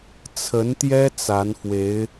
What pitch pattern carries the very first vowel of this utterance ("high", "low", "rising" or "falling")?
rising